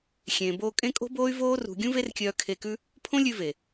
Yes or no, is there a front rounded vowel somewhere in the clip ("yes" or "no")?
yes